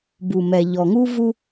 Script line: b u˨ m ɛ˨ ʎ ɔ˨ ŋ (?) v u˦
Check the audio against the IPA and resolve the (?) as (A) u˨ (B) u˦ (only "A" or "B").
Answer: B